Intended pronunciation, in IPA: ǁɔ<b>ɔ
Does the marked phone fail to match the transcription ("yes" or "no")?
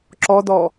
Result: yes